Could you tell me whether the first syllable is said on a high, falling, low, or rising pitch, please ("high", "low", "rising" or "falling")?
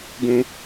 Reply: high